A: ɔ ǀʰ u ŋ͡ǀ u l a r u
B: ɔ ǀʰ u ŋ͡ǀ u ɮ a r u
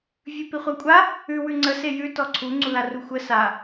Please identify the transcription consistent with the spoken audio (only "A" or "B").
A